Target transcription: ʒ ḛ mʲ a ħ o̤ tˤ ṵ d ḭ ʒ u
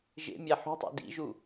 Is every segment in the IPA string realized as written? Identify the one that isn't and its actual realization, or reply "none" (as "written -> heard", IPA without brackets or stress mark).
none